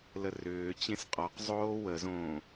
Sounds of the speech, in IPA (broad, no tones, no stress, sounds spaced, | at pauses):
l ə r ʏː t͡ɕ ẽ s qʼ ɔ q zˤ oː w ə z õː